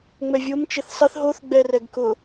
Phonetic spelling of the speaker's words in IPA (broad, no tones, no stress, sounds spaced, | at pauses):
ŋ͡m ɛ vʲ o m t͡ʃ e θ sˤ ɪ θ ɦ o θ ɡ͡b ɛ r ɛ ɡ k ʊ